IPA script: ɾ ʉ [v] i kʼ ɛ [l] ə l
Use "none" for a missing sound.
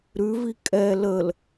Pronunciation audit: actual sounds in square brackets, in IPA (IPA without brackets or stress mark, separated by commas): v, l